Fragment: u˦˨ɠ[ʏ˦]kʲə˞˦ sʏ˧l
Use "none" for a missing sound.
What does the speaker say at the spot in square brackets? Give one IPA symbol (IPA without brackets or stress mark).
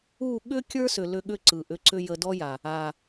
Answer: ʏ˦